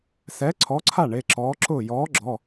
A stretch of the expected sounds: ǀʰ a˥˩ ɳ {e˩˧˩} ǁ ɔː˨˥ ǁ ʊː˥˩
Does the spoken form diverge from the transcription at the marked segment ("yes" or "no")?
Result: no